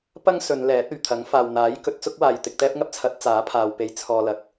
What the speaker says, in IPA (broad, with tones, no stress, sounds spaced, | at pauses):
p ɐ˥ ŋ s ɵ˨˧ n l ɛː˨˥ t̚ ɵ˨˩ ɥ t̪ʰ ɐ˨˥ ŋ f aː˨ w n̪ aː˨˥ j k ɵ˨˥ t̚ t͡s ʊ˥ k̚ w aː˨ j t̪ ɪ˧ k̚ t̪ ɛː˥ p̚ ŋ ɐ˥ p̚ t͡sʰ ɐ˨˥ t̚ t͡s aː˨˥ pʰ aː˨ w p e˨˧ j t͡sʰ ɔː˨ l ɐ˨ k̚